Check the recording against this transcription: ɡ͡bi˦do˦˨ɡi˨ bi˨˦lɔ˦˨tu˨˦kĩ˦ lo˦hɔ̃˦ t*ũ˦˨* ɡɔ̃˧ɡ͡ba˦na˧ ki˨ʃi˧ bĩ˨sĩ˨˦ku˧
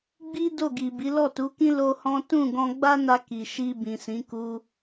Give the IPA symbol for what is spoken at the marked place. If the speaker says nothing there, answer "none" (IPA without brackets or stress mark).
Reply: ũ˦˨